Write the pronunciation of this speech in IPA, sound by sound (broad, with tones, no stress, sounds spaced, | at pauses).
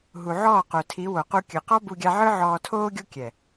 ɦ u˨ ʕ ɔː˦˨ q o˨ tʰ i˨˦ w o˨ q u˧ kʲ ɯ˨ q ɔ˦ b u˧ ɡʲ a˧ ʕ ɯ˦ ʕ ɔː˧ tʰ oː˧ ɡʲ o˧ kʲ ɛ˨